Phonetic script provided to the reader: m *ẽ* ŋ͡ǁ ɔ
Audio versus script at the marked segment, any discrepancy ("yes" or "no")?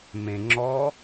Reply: no